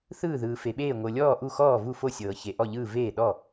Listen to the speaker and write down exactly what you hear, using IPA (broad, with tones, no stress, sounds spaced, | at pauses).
θ ɯː˥˩ ð ɯː˩ f e˩ ɓ eː˥˩ ŋʷ ɤ˩ lʲ ɔː˥˩ ʔ u˥˩ x ɔː˥˩ v u˥˩ f o˥˩ sʲ ɤː˩ ç e˩ ʔ ɔ˥˩ ʎ ɯː˥˩ v eː˥˩ ɗ ɔ˥˩